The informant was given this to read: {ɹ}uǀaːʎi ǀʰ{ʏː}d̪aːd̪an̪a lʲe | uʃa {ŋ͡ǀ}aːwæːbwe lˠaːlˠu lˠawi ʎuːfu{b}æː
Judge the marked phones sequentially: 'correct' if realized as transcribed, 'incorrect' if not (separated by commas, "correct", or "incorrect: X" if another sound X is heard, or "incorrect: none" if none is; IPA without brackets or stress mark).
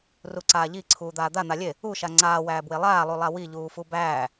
incorrect: r, incorrect: uː, correct, correct